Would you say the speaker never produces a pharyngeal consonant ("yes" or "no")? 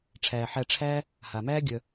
no